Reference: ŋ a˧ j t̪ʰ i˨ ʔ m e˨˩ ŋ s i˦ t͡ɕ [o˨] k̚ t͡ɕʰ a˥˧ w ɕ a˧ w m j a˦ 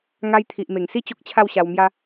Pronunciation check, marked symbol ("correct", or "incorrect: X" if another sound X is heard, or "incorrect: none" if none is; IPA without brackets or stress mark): incorrect: o˦